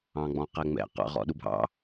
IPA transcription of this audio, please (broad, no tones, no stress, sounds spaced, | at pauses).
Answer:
ɑ̃ ɡ͡b ɔ̃ q ɛ ŋ͡m ɛ̰ q ɑ̰ ʁ ɔ̰ ɗ u bʱ ɑ̰